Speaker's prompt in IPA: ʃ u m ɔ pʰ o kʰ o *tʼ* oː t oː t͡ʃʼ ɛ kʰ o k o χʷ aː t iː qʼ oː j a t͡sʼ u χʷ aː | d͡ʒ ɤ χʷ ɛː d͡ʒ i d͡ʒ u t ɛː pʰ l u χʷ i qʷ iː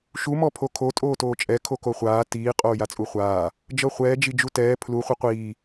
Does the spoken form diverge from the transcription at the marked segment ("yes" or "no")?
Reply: no